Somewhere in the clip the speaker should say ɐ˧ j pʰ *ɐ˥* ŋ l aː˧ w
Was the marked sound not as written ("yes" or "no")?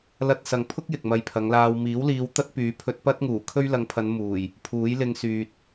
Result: yes